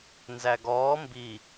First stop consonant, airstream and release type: plain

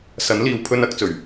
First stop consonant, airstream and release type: aspirated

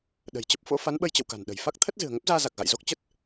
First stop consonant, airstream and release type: implosive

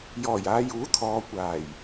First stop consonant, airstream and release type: aspirated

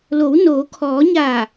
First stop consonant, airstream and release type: aspirated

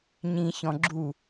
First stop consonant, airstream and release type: click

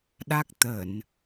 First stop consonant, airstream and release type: implosive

